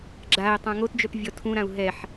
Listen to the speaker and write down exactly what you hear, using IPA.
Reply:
ɡ͡ǁ a i̯ tˤ ã ŋ o t d͡ʒ œ p vʲ ɔ tʰ ũ ɾ ã u̯ ɦ ɛ ħ

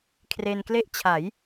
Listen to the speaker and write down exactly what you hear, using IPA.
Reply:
kʰ r e˧ n k l e˥˩ ʔ t͡ɕʰ a˩˦ j

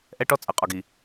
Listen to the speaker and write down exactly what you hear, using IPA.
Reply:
ʔ ɛ˦ ʈ ɔ˦ t͡sʼ ɐ˨ qʼ ɒ˨ ɡ i˨

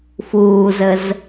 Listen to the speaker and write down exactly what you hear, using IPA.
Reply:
f uː z ə z

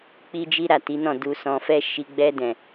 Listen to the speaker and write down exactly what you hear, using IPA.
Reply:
k͡p i˦ d͡ʒ i˦ ɾ a˦˨ t i˨˦ n ɔ̃˦˨ d u˧ s ɔ̃˧ f ɛ˦ ʃ i˧ ɡ͡b ɛ˧ d ɛ̃˨

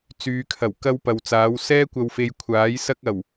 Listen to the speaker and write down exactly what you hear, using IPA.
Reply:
t͡s yː˨˧ kʰ ɐ˨˩ w k ɐ˥ w p ɐ˨ w t͡s aː˨˥ w s ɛː˥ kʷ ɐ˨ w f e˨˧ j kʷʰ aː˨˥ j s ɐ˧ k̚ ɐ˨˩ w

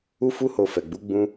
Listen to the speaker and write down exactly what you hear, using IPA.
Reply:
u˦ f u˦ h o˧ f ɛ˨ ɡ͡b u˨˦ ɡ͡b ũ˦

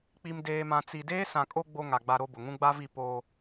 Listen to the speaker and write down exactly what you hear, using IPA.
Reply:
k͡p i˨ m d eː˨ m ã˨ t͡s i˨ d eː˦ s ã˨ kʼ o˦ ɡ͡b o˦ ŋ a˨ ɡ͡b a˦ ɾ o˦ b ʊ˨ ŋ ũ˦ ɡ͡b a˦ v i˦˨ p oː˦

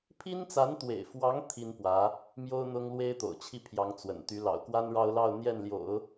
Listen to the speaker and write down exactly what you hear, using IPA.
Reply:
pʰ i˥ n t͡s a˧˥ n t̪ w ḛ˨˩ ɪ̯ f w ɑ˧˥ ŋ t̪ʰ i˥ n p w ä˧˥ | m j o˥ ʊ̯ n̪ ʊ˥ ŋ l w e˥ ɪ̯ t̪ o̰˨˩ ʊ̯ t͡ɕʰ i˥˩ pʰ j ɑ˧˥ ŋ t͡s w ə̰˨˩ n t̪ y˧˥ l ɑ̰˨˩ ʊ̯ k w a˥ n ɻ ɑ˥ ʊ̯ l ɑ˥˧ ʊ̯ n̪ j ɛ˥˩ n l j o̰˨˩˦ ʊ̯

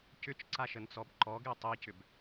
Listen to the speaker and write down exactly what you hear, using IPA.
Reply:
c ʏ t͡ʃ ǀ a ʃ ə n t͡s ɔ b ǃ ɔ ɡ e tˤ i c ʏ b

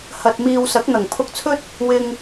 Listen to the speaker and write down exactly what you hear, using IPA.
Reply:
h ɐ˨ t̚ m iː˨ w s ɐ˨˥ k̚ n̪ ɐ˨˩ ŋ pʰ ʊ˧ k̚ t͡sʰ ɵ˥ t̚ | w ɪ˧ ŋ

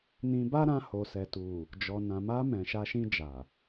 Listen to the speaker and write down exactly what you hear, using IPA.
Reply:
n ĩ˧ b a˦ ɾ ã˧ h o˨ s ɛ˨ t u˨ | d͡ʒ ɔ˨ n ã˨ m a˧ m ɛ̃˨ ʃ a˧ ʃ ĩ˧ d͡ʒ a˨

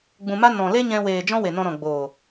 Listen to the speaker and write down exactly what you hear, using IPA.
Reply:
ɡ͡b ũ˧ m a˦ n ɔ̃˨ l e˦ ɲ ɛ̃˧ w eː˨ d͡ʒ ɔ̃˦ w e˨ n ɔ̃˧ ɾ ɔ̃˨ ɡ͡b oː˨

